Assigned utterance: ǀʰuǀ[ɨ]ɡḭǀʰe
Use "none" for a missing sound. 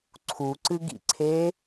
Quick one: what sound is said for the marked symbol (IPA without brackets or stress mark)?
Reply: ɨ